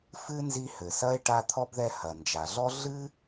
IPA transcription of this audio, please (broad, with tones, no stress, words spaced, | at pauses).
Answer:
fɨ˥ nzi˦hɘ˩sɐ˥e̯ ʈa˦t̪ʰɔ˥bðɛ˦ hɐ˩nd͡ʒa˩ɮɔ˥ ɮɨ˥